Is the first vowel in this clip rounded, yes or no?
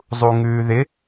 yes